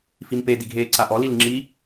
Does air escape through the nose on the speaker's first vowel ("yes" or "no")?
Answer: no